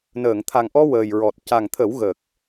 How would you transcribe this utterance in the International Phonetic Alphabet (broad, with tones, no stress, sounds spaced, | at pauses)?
n əː˨˩˨ ŋ t̪ʰ a˨˩ ŋ ʔ ɔ˧ w əː˨˩ j ɹ ɔ˨˩ t̚ c a˨˩ ŋ t̪ʰ ə˨˩˦ w ɣ ə˨˩ k̚